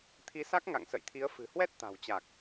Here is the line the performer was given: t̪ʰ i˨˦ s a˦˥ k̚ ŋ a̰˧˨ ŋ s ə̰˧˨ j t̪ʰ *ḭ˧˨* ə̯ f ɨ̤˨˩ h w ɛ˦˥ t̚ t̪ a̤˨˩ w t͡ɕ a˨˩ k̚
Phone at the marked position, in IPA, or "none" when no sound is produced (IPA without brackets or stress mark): i˨˦